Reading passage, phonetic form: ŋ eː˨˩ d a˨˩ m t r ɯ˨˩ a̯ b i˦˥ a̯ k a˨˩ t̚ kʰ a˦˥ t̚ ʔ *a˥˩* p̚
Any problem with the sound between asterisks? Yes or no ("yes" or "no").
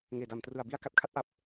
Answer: yes